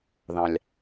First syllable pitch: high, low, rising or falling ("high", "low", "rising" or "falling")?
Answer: low